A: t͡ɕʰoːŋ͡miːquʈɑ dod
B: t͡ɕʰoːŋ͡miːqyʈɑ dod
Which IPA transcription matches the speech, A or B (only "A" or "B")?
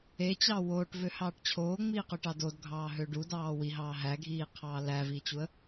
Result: B